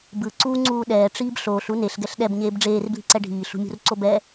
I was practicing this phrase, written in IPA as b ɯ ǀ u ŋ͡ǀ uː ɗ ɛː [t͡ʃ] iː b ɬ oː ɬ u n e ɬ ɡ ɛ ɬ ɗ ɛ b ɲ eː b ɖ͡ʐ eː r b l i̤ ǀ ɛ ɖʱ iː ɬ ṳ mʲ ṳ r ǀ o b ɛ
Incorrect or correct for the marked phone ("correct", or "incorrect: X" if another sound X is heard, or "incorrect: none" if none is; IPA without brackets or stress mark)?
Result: incorrect: ʈ͡ʂ